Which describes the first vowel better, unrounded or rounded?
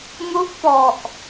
rounded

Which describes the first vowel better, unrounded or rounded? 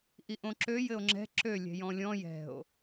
unrounded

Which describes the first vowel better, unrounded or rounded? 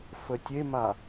unrounded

